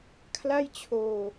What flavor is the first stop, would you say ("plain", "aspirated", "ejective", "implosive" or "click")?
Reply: aspirated